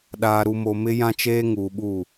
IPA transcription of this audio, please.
ɗaː˨ɾu˨mo˨mɪ˦ jã˦t͡ʃeː˦ ŋuː˨ɓu˦˨

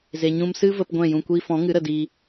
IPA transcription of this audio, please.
ze˨ɲũ˧m sɨ˦və˧p ɡʷɛ̃˦˨jũ˧kʷiː˦ fɔ̃˨˦ŋɨ˨˦ ɾə˨diː˧

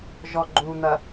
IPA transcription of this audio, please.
ʒɔɡ͡ǃun̪ɐ

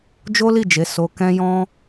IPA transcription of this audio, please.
d͡ʒo˦li˦˨d͡ʒe˨˦ so˧kɛ̃˦jɔ̃˦

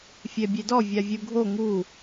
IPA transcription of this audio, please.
fʲɛbʲedɔ vʲavʲuɡʱo ŋu

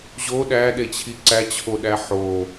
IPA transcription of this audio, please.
ʑo ɗæɗet͡ɕʰi ǀæt͡ɕʰoɗæ ħo

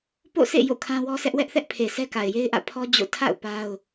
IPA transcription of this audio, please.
po̰˦˨sḛ˦˨ jo̰˦˨kʰã˦wɔ˦sʰɛ˦ʔ wɛ˦ʔθɛ˦ʔpʰe˨ sɛ˦ka˨ɪ̯je˦ɪ̯ʔä̰˦˨ pʰɔ˦ d͡ʑo̰˦˨ tʰa̰˦˨ʊ̯ pa˦ʊ̯

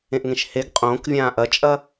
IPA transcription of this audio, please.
ẽʔŋẽʃheɡ qʼõːkvʲãː ʔɐt͡ʃʼɐ

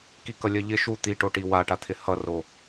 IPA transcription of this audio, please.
kikʌlʲɜʎɪ ʃu t̪iʈoʈi waʈat̪ʰɪ hʌro

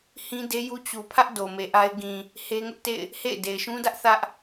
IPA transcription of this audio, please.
hĩ˦de˦ju˦ t͡ɕu˨pʰä˦ʔ do˨me˨ʔa˦ɪ̯ ɡĩ˨ | he˦ŋʊ˦ʔtḛ˦˨ɪ̯ | hḛ˦˨ɪ̯ de˨ɪ̯ʃũ˦dä˦ʔ θä˦ʔ

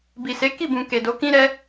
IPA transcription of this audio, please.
bi˨se˨˦ ki˦˨bũ˨ ke˨do˨˦kĩ˦ɾɛ˦

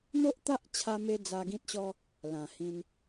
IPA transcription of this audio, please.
n̪o˦ʔt̪a˦ʔt͡ɕʰa˧me˧ d͡za˧ɡĩ˦t̚ɕɔ˦ | lã˨˩hĩ˧n

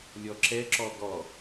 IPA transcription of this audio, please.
lʲɔǁɛǁɔ ɡɔ

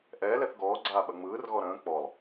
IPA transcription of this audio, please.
ʔɛːlɛθ ɡɔːɡ͡ǀaːɓɐ ŋ͡mɯːrɣɔ ɾə̃ː k͡pɔlˠ

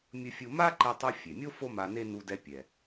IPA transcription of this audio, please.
mʲɯ˧fʲu˧ ma˥ǃɛ˧tˤu˧ fʲe˩mʲo˥ fo˥ma˧ne˥ nu˧dɛ˧pʲɛ˩

